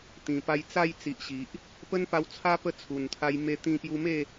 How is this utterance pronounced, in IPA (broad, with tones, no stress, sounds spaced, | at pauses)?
t̪ ĩ˨˩ p a˧ j t͡s a˥˧ j t͡s i˨ ʔ ɕ i˨ ʔ | p ə˦ n p a˧ w t͡sʰ a˦ p ə˥˧ t͡sʰ u˨˩ n t̪ʰ a˧ j m e˧ t̪ ĩ˧ p j u˧ m e˥˧